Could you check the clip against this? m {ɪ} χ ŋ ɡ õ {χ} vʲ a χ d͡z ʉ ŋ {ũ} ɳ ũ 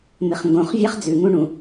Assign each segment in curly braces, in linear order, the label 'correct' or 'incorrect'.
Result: correct, correct, correct

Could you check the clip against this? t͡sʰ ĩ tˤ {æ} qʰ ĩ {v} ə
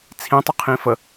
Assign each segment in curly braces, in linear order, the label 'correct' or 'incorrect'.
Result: incorrect, incorrect

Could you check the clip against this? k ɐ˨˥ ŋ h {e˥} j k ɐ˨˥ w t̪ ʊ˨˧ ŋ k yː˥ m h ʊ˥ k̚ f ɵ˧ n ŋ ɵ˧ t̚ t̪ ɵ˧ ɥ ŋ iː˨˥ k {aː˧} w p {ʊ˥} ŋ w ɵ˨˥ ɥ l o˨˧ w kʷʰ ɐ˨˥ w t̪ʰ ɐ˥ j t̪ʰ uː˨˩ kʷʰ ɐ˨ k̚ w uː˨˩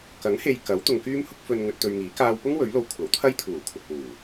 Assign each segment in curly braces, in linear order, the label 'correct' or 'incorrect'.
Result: incorrect, correct, correct

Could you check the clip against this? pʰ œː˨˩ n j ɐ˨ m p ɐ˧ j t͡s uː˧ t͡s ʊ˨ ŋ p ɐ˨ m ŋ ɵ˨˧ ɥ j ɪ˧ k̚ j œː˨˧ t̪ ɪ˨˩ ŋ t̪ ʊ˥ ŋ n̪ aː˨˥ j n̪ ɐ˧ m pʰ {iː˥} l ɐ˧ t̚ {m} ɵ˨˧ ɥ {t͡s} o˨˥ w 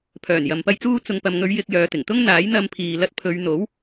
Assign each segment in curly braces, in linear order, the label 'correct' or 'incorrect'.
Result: incorrect, incorrect, incorrect

